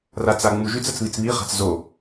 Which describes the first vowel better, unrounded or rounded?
unrounded